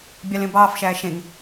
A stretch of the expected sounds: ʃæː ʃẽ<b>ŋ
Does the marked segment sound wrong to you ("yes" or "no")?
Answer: yes